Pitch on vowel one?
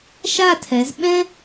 falling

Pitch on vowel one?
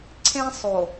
high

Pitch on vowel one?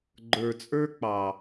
low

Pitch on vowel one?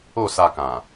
falling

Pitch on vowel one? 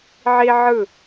high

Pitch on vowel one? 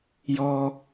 high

